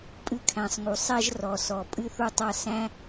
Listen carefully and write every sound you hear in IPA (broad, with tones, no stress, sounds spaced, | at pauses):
pʼ ɨ˧ kʰ æ̃˩ sˤ ŋ u˩ sˤ ɛ˧ ʒ r ɔ˩ s ɔ˩ pʼ ɨ˧ θ u˧ tˤ a˧ s æ̃˥